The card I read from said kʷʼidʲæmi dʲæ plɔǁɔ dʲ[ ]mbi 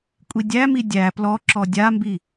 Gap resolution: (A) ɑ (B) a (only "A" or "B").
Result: B